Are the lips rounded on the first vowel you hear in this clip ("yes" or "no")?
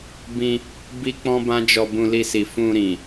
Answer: no